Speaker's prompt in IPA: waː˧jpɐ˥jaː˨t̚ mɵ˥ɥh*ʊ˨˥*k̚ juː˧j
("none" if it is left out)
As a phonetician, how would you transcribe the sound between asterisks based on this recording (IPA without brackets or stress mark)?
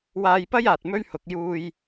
ʊ˨˥